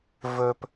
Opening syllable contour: low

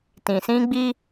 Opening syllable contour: low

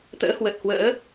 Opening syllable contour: rising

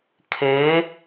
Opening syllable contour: rising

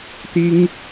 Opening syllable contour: high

